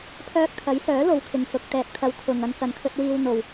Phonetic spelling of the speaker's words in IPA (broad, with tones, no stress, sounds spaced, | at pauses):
pʰ œː˧ k̚ t̪ʰ ɐ˨˥ j s œː˨˥ l o˨˧ w kʰ ɪ˨ ŋ s ʊ˨˥ k̚ t̪ ɛː˨ k̚ t̪ʰ ɐ˧ w t̪ʰ ʊ˨ ŋ ɐ˨˧ n k ɐ˨ n kʰ ɵ˧ t̚ w iː˧ w n̪ o˧ w